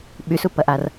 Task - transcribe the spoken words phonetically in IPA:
ɓ y s u p ɐ ʔ a r

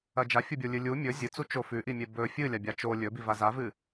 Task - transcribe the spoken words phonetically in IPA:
ɐ d͡ʒ a fʲ u bʲ o lʲ ɨ lʲ u mʲ ɵ zʲ ɨ t͡s u t͡ʃ o f ʉ ʔ i mʲ e b ɵ fʲ ɨ lʲ a bʲ a t͡ʃ o lʲ ɵ b i v a z a v ɨ

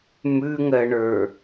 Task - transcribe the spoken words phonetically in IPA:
m ʉ ŋ ɜ ɳ ə˞

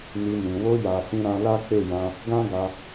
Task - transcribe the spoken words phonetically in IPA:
n i˧ n ĩ˨ w o˧ j a˨ f ĩ˧ ɾ ã˧ l a˦ k͡p e˦˨ j ã˧ | ɡ ã˦ ɡ a˧

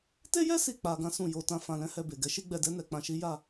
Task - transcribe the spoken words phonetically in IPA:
t e˦ j ɛ˦ s i˦˨ k͡p a˧ ɡ ã˦ s ũ˦˨ j o˨˦ t ã˧ f ã˧ l ɛ̃˦ h ɛ˦˨ b e˨ ɡ ɛ˨˦ ʃ i˦ ɡ͡b ɛ˧ d ɛ˦ n ɛ˧ k͡p ã˧ ʃ i˦ j a˦˨

